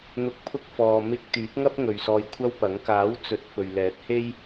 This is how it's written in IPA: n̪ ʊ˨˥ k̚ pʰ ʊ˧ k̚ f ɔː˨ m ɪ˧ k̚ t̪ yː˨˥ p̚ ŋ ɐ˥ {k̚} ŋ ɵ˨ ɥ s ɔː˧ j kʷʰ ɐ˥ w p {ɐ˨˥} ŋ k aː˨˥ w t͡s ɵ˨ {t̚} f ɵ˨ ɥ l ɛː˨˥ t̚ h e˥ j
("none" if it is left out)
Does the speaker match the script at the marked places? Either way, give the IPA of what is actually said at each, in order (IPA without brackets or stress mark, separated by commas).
p̚, ɐ˨˥, t̚